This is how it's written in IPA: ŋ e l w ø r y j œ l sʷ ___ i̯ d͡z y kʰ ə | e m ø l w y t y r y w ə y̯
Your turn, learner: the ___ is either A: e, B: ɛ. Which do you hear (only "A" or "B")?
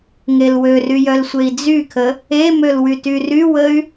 A